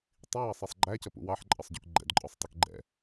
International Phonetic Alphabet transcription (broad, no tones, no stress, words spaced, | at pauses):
tˤiwɑsˤɛsˤ ɡ͡ǃæcʌpṵ wɑħǃʼʌsˤɟṵk ɡ͡ǃɛ̰dǃʼɔsˤtˤʊk ɡ͡ǃɛ̰